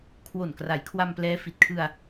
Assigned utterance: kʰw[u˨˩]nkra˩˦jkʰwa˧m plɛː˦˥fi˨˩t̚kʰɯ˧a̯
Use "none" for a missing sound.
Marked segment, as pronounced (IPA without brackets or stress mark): o˨˩